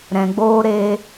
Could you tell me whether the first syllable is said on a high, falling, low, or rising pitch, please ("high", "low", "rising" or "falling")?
low